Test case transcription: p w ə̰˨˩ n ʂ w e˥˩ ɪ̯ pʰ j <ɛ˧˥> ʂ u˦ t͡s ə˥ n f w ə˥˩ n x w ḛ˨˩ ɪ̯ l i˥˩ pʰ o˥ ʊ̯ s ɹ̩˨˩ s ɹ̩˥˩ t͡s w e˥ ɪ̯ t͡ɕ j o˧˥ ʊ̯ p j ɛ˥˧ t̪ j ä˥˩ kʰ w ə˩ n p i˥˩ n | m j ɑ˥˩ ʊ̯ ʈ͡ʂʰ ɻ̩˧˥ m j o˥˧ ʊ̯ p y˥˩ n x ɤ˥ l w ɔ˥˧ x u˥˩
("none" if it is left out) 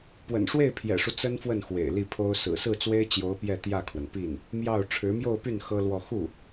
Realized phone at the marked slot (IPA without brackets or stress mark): ɛ̰˨˩